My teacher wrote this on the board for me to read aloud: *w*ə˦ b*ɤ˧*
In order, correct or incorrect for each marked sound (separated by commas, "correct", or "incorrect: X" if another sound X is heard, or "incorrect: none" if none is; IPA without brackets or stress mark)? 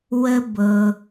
correct, correct